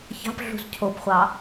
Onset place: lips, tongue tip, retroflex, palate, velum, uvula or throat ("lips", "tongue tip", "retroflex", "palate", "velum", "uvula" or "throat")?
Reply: palate